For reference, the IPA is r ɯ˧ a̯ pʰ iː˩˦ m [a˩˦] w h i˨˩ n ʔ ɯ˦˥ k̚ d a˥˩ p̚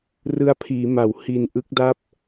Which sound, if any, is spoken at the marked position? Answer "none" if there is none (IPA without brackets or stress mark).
a˩˦